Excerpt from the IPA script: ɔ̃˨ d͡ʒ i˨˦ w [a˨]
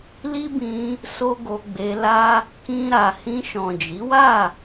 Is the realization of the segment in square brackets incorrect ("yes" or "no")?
yes